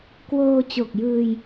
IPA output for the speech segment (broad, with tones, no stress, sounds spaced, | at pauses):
k w oː˧ t͡ɕ o˨˩ k̚ j ɯː˧ j